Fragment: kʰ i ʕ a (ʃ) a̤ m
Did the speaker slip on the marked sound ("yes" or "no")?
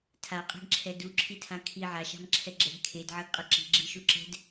no